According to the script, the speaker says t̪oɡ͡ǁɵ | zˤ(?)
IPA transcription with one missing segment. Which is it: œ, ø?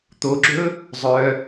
œ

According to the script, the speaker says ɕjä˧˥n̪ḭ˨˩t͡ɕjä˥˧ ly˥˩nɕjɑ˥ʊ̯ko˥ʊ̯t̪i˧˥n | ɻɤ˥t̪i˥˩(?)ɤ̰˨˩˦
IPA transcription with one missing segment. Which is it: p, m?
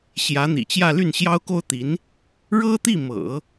m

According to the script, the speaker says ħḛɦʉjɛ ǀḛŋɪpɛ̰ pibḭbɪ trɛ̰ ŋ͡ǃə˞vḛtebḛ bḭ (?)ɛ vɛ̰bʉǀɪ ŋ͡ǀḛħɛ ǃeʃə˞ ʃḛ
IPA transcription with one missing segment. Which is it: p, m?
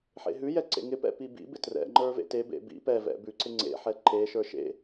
p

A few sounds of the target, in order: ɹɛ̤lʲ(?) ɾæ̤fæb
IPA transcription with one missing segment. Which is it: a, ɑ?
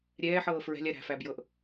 a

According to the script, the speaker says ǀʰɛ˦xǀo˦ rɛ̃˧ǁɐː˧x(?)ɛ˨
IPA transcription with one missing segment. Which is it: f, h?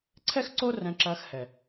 h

